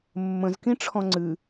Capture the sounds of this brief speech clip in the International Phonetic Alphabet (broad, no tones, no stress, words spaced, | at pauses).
mːə̃zkĩʈ͡ʂʰɔ̃ ŋ͡ǀɨ